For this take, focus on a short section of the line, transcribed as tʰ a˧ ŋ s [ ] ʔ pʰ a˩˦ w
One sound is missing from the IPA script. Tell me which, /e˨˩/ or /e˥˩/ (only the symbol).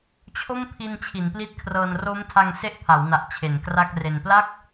e˥˩